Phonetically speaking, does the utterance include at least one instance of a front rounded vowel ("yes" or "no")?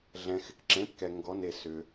yes